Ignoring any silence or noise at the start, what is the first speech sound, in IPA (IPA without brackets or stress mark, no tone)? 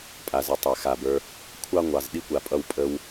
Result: pʼ